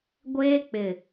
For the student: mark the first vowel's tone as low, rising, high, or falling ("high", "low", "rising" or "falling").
high